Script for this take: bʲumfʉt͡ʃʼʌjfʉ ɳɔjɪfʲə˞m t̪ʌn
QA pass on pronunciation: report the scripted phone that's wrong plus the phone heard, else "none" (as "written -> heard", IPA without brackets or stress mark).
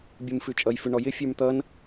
none